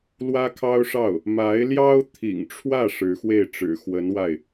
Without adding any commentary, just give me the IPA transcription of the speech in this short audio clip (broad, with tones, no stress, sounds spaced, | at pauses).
l w ä˥ kʰ ɑ˥ ʊ̯ ʂ ɑ˥˩ ʊ̯ | m a˧˥ ɪ̯ l j ɑ˥ ʊ̯ t̪ʰ ḭ˨˩ ŋ ʈ͡ʂʰ w ä˥˩ ʂ ɻ̩˧˥ x w e˥˩ ɪ̯ ʈ͡ʂ ɻ̩˨˩ x w ə˧˥ n w a˥˩ ɪ̯